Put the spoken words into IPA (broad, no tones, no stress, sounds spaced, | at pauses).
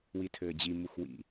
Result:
w i tʰ ɘː d͡ʑ i m u x w ḭ